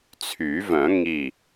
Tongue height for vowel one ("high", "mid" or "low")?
high